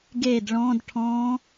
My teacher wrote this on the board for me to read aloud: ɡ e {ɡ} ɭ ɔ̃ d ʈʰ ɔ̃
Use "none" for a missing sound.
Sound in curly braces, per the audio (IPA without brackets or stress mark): d